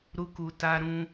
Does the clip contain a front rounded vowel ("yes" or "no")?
no